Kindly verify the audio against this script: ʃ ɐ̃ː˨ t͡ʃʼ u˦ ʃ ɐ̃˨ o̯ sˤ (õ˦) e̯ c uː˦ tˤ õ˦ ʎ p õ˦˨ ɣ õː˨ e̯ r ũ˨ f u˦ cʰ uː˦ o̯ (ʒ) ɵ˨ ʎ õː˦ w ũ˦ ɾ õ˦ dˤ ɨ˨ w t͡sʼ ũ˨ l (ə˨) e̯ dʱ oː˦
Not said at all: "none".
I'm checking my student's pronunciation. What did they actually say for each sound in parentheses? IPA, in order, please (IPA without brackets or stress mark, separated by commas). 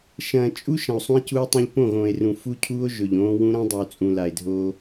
ũ˦, ʒ, a˨